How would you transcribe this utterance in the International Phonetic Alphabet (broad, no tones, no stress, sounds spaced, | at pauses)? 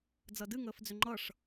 d͡z ʌ d ɨ ŋ əː f d͡z ʏ ŋ͡ǃ ʌ ʂ